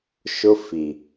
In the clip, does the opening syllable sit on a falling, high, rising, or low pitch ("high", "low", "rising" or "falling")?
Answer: high